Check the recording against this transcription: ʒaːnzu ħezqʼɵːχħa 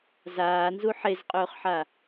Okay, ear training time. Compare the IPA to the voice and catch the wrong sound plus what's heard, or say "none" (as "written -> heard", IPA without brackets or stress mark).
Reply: ʒ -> z